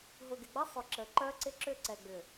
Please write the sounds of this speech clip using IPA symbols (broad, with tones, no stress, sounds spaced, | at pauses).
ɦ ʊ˨ ɡ ɪ˨ ɡ͡b ɐ˦ sˤ ʊ˨ ǁ ə˨ ǃ œ˦ ǀ ɪ˦ ǁ ʏ˦˨ ǀ ɛ˨ ɡ͡b ʏ˨